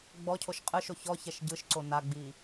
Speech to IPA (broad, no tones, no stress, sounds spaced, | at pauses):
ɡ͡b ɔ cʰ o ʃ qʼ ɯ ʃ o ç ɔ ç ɛ ʃ ɟ ɯ ʃ ǀ o n a ɡ͡b i